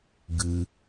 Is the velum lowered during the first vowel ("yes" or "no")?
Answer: no